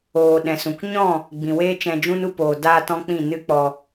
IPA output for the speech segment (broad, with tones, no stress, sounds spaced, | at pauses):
oː˨ ɗ ɛ̃˨ s ũ˨ k ɲ ɔ̃˦˨ | ɡ͡b ĩ˨ w eː˦ t͡ʃ ɛ̃˧ d͡ʒ ũ˦ n u˧ p oː˨ d aː˧ t ɔ̃˧ k͡p ĩ˦˨ n ɨ˦ k͡p ɔ˧